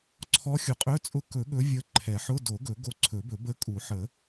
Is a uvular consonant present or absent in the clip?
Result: present